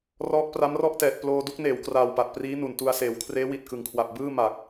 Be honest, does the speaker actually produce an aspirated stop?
yes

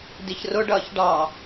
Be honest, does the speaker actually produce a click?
no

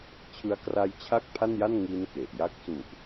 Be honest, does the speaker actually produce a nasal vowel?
no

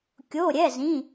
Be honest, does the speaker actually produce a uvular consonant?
no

